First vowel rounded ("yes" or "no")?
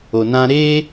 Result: yes